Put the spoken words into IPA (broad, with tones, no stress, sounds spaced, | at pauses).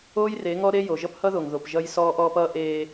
oː˦ j r e˨˦ ŋ ɔ˦ ɾ e˦ j o˨ ʒ ʌ˦ p h ʌ˦ ð o˨ ŋ ð o˨ p ʒ ʌ˦ j s ɔː˦ ʔ ɔː˦ p ʌː˦ ʔ eː˦